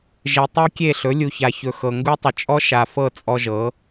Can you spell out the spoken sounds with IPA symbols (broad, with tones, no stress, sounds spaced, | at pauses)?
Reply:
ʒ e˨ tˤ ɤ˦ kʲ e˦˨ ɬ ɵ˨˦ lʲ u˨ ç a˨ ç ɵ˨ x ɤ˨ ŋ ɡ u˦ tˤ ə˨ t͡ʃʼ ɔ˦ ʃ a˨ f ɤ˦˨ t͡sʼ ɔ˦ ʒ ɤ˨˦